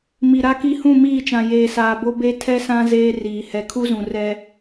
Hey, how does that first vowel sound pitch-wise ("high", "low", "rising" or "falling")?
low